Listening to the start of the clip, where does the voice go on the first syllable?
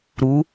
rising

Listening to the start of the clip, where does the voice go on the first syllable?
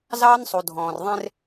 high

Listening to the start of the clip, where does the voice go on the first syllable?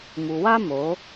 low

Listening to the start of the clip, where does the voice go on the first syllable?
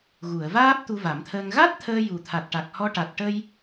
low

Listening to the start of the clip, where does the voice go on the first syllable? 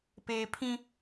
high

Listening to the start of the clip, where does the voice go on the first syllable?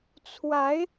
rising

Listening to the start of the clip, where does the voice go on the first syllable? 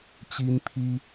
high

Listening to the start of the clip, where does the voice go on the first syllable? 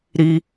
high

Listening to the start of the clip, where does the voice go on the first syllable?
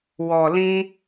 low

